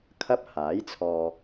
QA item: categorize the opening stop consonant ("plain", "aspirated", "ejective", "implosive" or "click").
aspirated